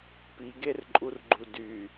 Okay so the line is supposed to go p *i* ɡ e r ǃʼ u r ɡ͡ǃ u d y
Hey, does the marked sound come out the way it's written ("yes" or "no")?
yes